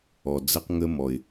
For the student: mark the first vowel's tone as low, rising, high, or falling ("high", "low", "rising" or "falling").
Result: low